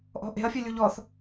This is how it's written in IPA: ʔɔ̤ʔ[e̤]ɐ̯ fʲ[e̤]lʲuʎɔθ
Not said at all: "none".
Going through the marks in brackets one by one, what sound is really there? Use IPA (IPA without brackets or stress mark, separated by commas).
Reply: e̤, e